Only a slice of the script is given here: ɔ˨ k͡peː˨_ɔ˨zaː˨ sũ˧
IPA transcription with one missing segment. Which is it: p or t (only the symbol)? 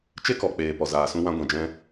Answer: p